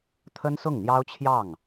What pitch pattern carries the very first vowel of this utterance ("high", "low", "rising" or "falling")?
high